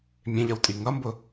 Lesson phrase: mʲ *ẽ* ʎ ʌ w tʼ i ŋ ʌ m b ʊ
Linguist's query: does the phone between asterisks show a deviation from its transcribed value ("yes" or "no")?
no